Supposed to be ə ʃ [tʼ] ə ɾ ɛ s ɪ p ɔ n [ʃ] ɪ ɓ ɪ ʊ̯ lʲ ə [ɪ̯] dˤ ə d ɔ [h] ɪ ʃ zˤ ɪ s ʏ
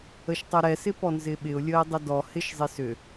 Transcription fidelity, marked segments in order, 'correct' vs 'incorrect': incorrect: tˤ, incorrect: z, correct, correct

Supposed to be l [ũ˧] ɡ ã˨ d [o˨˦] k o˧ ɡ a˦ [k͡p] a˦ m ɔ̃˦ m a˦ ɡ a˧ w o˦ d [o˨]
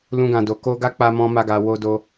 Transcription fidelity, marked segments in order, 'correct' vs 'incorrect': correct, incorrect: o˨, correct, incorrect: o˦

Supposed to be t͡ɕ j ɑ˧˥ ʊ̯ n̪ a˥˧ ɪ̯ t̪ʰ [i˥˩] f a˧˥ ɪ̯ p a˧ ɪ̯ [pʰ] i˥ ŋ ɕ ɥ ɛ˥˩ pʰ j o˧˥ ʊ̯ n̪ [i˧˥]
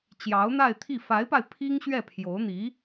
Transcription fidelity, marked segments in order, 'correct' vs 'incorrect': correct, correct, correct

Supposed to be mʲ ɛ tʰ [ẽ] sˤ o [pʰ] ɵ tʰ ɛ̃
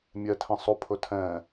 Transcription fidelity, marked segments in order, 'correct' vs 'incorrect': incorrect: ɛ̃, correct

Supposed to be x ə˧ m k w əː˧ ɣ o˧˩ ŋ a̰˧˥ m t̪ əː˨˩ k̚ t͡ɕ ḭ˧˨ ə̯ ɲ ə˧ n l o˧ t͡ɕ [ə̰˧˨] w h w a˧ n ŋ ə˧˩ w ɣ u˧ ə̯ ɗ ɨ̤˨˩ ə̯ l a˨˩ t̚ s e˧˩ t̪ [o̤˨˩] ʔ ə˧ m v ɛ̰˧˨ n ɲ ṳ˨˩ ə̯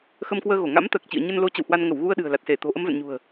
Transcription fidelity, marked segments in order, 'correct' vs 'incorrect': correct, correct

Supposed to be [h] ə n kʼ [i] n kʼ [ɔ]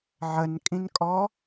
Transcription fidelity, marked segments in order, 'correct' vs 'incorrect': incorrect: ʕ, incorrect: ĩ, correct

